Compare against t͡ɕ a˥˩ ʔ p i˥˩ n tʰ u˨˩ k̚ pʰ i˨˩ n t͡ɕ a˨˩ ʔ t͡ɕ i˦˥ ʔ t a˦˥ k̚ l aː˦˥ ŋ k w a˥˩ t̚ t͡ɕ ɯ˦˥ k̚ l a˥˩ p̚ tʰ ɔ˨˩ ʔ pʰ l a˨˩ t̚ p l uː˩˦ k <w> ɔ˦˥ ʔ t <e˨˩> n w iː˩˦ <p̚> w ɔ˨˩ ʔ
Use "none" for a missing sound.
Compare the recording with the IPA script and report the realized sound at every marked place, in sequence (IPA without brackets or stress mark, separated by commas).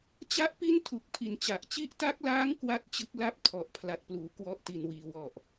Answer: w, i˨˩, none